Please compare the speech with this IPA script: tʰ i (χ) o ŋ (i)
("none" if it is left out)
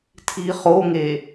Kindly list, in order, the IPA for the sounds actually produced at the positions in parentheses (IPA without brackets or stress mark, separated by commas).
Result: χ, e